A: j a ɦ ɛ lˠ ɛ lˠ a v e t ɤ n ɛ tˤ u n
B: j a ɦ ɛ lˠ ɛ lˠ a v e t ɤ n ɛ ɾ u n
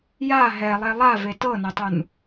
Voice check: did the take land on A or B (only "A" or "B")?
A